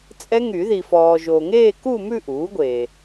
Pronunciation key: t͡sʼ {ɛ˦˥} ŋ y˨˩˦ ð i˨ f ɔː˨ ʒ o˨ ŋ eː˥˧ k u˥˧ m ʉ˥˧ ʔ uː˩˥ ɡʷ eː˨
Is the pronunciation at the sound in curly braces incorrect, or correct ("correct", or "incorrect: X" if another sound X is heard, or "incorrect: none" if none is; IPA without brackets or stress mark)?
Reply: correct